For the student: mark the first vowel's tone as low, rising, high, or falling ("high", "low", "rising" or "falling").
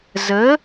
rising